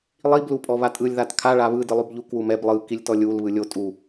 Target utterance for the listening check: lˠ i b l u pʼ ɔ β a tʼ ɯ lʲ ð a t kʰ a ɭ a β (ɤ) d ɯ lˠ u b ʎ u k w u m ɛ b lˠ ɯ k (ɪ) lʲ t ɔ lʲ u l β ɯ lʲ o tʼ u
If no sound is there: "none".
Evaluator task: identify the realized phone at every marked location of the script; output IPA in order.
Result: ɯ, i

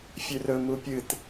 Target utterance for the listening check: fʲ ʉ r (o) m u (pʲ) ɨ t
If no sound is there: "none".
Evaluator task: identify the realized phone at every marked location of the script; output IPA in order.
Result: ɵ, pʲ

